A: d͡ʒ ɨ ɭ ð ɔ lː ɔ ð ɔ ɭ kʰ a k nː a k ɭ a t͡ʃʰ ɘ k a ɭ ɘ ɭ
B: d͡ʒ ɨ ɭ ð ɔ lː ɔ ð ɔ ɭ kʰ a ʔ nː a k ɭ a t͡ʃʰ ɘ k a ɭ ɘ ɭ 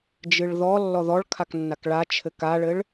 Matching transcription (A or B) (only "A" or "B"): A